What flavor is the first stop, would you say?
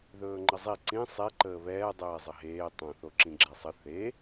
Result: click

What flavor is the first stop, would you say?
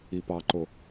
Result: plain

